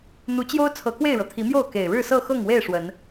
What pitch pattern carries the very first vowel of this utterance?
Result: rising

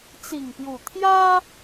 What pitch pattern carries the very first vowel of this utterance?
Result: low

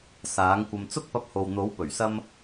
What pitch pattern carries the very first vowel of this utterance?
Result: rising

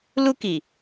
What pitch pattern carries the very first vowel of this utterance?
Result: high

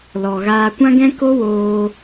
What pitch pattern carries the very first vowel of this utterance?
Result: low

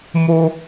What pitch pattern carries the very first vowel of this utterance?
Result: high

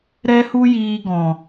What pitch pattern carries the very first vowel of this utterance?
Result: high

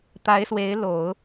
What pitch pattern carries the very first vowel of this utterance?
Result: rising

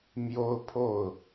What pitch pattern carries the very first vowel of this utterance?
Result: high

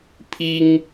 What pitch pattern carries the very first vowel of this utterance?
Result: high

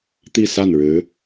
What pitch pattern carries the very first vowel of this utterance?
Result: falling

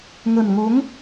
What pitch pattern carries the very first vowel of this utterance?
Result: low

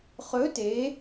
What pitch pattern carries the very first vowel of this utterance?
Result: rising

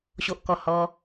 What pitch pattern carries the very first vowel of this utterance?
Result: low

